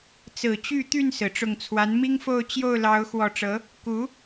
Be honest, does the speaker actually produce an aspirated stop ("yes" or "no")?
yes